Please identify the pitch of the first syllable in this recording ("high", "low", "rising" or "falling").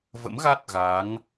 rising